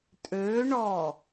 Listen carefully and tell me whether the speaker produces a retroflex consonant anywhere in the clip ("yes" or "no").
yes